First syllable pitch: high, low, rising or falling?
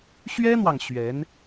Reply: high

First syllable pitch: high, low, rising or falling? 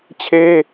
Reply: high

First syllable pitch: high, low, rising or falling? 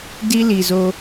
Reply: high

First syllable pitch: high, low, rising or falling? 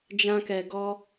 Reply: high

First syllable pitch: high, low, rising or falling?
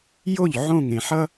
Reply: falling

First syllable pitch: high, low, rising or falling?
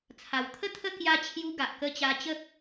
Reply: low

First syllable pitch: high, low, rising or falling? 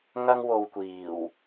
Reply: high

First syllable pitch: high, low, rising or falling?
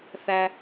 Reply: low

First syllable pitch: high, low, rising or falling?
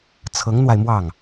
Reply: rising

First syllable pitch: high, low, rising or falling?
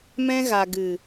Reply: high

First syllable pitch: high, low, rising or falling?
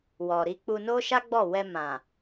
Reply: low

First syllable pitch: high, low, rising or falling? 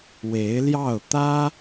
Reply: rising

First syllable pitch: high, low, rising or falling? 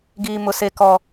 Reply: high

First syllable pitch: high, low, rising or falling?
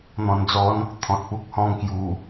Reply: low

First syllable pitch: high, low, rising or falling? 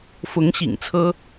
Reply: rising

